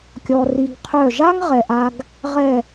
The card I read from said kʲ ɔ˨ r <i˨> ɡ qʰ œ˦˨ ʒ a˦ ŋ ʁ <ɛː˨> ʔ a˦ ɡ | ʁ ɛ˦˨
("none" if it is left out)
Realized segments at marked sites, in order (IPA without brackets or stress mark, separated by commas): i˨, ɛ˨